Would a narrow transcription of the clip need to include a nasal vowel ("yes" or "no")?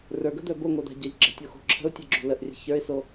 no